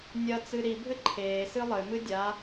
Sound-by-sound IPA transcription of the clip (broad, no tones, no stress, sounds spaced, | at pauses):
nʲ ɐ t͡s ɨ ɾ i bʱ ɘ ǃʰ eː s ɨ lˠ ɘ m ɨ dʲ a